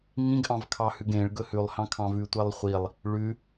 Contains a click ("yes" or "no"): no